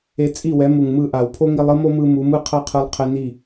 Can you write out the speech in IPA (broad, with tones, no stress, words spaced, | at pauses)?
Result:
e˧t͡sʼi˦˨wɛ˨˦ mu˨ŋmɯ˦˨ʔa˨w pʰo˦ŋi˧lˠɯ˦mo˦ mɯ˦mu˨˦ mɯ˦qʰʌ˦qʰɯ˧lˠ qʰɛ˧ni˦˨